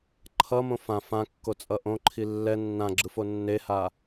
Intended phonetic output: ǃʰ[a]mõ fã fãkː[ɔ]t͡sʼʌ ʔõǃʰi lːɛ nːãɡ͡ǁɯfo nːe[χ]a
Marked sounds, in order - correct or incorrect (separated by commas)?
incorrect, incorrect, incorrect